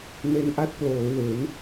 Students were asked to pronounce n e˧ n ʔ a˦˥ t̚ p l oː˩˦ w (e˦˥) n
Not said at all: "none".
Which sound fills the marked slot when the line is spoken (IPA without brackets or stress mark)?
e˩˦